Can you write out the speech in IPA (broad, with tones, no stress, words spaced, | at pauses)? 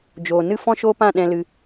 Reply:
d͡ʒoː˨nɨ˦ fɔ̃˦ʃo˦pã˦˨ ɗɛ̃˧lɨ˧